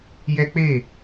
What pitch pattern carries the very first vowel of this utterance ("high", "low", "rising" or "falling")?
high